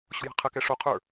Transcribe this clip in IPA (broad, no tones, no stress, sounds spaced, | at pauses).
ɕ o̤ j a̤ qʰ ə k ɛ ʂ o qʰ ə˞